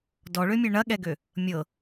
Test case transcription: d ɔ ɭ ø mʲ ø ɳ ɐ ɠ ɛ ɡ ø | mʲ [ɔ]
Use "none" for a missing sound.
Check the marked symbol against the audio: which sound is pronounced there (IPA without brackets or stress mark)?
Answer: ɤ